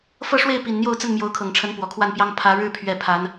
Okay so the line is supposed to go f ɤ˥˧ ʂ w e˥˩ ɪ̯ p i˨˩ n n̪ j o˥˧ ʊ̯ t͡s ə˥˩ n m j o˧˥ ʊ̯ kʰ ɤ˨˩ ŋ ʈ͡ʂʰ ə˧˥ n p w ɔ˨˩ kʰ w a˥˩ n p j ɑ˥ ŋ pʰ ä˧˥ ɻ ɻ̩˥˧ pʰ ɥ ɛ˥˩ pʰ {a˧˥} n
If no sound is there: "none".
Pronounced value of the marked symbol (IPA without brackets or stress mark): a˧˥